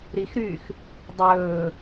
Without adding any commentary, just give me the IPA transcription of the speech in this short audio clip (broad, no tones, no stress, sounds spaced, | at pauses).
ɾ i x ɾ yː x | dˤ ɵː